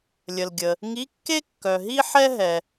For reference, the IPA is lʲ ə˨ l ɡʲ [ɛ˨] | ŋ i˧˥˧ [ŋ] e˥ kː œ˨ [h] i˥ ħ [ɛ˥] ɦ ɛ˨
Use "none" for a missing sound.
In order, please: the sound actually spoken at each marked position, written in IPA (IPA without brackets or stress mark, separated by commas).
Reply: ə˨, kː, ɦ, ɛ˥